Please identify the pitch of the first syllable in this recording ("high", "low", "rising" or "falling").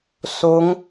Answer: rising